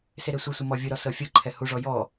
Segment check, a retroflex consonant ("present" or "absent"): present